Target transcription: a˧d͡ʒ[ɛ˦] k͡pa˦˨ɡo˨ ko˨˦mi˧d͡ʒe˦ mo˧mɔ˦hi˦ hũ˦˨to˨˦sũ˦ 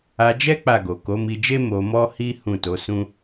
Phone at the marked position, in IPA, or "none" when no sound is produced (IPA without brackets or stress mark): ɛ˦